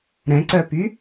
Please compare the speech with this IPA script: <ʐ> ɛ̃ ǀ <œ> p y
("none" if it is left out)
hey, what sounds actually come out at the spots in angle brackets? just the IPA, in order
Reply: ɾ, œ

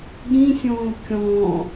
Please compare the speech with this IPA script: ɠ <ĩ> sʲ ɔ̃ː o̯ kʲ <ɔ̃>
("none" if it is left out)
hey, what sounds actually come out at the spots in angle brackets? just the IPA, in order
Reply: ĩ, ɔ̃

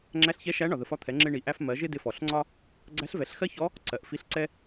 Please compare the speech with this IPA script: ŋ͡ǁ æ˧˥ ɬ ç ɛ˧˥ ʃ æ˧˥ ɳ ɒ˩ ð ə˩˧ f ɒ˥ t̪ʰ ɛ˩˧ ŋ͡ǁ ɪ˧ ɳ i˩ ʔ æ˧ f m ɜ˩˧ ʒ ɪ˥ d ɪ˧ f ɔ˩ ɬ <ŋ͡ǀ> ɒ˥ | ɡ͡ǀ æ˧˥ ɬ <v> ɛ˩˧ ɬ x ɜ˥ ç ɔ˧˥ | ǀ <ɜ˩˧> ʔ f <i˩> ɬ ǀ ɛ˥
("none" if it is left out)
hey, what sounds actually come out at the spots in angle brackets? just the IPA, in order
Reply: ŋ͡ǀ, v, ɜ˩˧, i˧˥

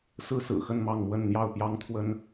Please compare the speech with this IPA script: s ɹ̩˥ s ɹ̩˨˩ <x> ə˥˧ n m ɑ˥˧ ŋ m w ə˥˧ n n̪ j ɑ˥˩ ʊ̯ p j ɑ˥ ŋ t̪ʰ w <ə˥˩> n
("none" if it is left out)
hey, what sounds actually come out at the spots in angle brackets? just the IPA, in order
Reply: x, ə˥

